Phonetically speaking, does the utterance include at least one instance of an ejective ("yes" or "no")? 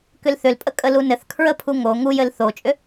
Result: yes